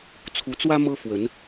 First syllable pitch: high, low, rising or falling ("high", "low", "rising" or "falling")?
rising